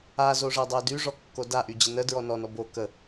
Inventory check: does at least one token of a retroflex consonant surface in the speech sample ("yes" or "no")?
yes